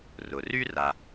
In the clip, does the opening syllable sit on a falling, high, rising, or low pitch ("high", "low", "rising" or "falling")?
low